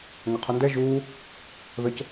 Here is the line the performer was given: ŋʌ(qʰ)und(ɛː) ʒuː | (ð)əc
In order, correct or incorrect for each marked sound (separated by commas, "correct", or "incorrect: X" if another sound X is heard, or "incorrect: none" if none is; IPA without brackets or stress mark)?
correct, incorrect: ɛ, correct